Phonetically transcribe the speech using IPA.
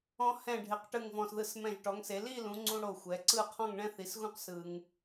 ɔ̃˧hɛ̃˧˩ɖʱe˩˧q ʈɯ˧˩ŋvɔ̃˧˩sðɯ˧˩s mɛ̃˧˩ʒʈɔ˩˧ŋse˩˧ li˥˧lũ˩˧ŋ͡ǀũ˧ ɽo˧˩xʷɛ˩˧ǀɯ˥˧ qʰɔ̃˥˧ŋɳɛ̃˥θi˩˧sɣũ˥q sɯ˧ŋ

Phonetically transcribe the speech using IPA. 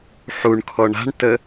ħuɳ kʰɔɳa̤ɳtə

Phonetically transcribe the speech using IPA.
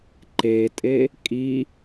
ǃetʼe | kʼi

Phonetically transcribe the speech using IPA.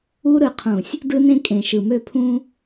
u˦ ɾɯ˨qʰũ˨sʲ | dɯ˦nẽ˦ kʼẽ˨ʃɯ˨mø˦ pʰũ˦

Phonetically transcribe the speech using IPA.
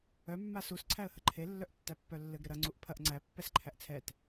œ mːasus ǀʰæə̯həǃʰe lːœʔtːæpːœlːɘɡ ɾɘɾɐ ŋ͡ǀuʔpʰɐʔ ŋ͡ǀæ pːɛsǃʰæʔt͡sʰɛt

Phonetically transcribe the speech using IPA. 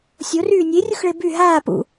sʲoryː nʲerʲuxɭe by ɦaː pṵ

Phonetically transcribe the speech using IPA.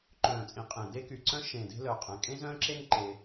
ǃœ̃ː˨˩t͡sʼĩ˨˩ qʼẽ˨˩ de˦ky˨˩ǀœ̃˦ ʃẽː˨˩de̤˦lœ˨˩ qʼɛ̃˨˩kʼẽ˦zœ̃ː˦ǁe˦ŋ ǃe˦

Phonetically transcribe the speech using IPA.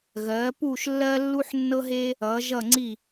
ɣɜː˩˥puː˥˩ʃ lːɜ˥lːu˥ħ nːɤ˥ɦeː˥ | ʌː˩˥ʒʌ˥˩ŋ͡ǀi˥˩

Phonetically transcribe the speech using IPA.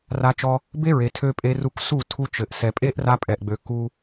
ra˧t͡ʃɔ˧ | be˦ɹe˨tʰø˧ pʼe˧ru˧k su˦˨ tʰu˧t͡ʃɘ˨ʔsɛ˨pʼe˦ʔ ra˧pʼɛ˨ʔɡ͡bø˨ ku˧

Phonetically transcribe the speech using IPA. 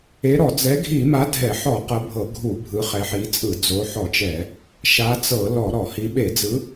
e˨˦ɾɔ˧˩˧ d͡zɛ˨˦ɡʱi˧˩˧ma˨˦ dʱɛ˧˩˧ħɔ˧˩˧qɤ˨˦ bʱɤ˧˩˧ɡʱu˧˩˧ bʱɯ˨˦χɛ˨˦ħi˨˦t͡sʼɯ˧˩˧ d͡zo˨˦ħɔ˧˩˧t͡ʃɛ˧˩˧ | ʃa˨˦t͡sɤ˧˩˧ lɔ˧˩˧ ɾɔ˧˩˧hi˨˦ ɓe˧˩˧d͡zɯ˨˦

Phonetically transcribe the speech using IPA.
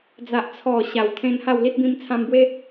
d͡za˨ʔ t͡sʰɔ˨˩ ɕa˨˩wt̪ʰẽ˧n ha˥˧wli˦t̚bĩ˦m t͡sʰã˧mbwe˦

